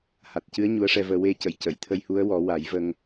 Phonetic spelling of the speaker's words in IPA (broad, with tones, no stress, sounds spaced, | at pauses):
h a˨˩ t̚ c ɨ˧˥ ə̯ ɲ u˧˥ ə̯ ʂ ɛ˧ v əː˧ w e˧ c ə˨˩˨ j c ə˨˩˨ j t̪ʰ ə˧ j h u˧˥ ə̯ w ɔ˨˩˦ w a˨˩˦ j v ə˧ ŋ